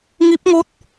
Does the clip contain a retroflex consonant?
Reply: no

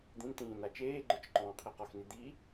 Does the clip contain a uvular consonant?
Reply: yes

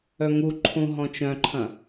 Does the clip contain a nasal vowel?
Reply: yes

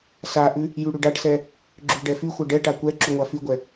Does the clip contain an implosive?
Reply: no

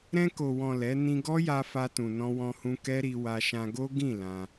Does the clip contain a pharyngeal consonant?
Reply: no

